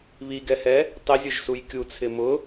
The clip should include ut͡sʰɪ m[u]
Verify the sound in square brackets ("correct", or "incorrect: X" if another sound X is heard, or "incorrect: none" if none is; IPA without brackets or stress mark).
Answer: incorrect: ʊ